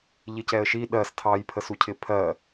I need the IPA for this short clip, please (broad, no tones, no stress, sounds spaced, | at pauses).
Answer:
ʎ ɪ c ɛ ə̯ ʃ i ɗ ɜ s tʰ ɑ j pʰ ə s u cʰ ɪ pʰ ɜ